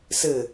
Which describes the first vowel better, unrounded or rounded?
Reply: unrounded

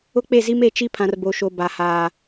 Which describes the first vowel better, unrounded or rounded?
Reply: rounded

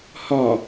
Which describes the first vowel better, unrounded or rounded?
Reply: rounded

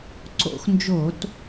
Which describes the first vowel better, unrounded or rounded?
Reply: rounded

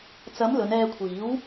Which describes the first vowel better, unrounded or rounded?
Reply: unrounded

